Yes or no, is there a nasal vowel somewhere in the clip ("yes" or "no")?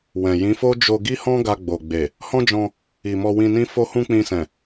yes